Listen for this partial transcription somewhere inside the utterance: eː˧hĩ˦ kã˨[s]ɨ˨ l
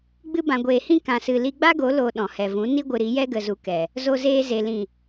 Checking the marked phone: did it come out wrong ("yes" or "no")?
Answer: no